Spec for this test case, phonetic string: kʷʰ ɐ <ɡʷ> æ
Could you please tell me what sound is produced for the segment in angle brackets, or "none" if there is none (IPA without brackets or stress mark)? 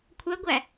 ɡʷ